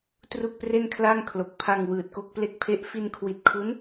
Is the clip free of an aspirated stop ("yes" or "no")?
no